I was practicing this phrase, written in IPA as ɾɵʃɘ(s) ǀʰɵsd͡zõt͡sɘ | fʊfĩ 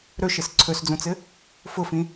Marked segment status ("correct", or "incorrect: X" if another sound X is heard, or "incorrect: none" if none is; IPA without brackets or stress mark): correct